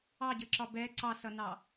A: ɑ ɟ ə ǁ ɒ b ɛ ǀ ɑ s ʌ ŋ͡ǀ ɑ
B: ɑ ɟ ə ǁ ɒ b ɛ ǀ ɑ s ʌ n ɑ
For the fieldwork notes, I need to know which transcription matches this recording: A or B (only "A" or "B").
B